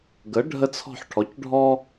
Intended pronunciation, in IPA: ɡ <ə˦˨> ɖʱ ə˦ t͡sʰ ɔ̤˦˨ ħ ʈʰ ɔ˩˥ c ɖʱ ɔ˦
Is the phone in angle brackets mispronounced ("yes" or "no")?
yes